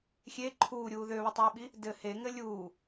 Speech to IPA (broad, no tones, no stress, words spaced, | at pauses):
xʲe ǃʰuːɾʲuː ðøβətˤeːɓi | dɘ heŋɘ lʲuː